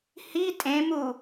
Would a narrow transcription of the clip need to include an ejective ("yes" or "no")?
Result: yes